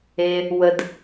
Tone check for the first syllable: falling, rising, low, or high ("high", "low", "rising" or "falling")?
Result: low